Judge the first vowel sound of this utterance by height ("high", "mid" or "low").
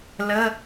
mid